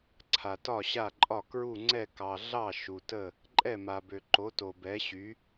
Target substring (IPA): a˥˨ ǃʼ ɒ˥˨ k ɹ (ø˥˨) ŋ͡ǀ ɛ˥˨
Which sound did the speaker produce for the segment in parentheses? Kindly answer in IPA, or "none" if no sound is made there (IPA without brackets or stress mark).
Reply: u˥˨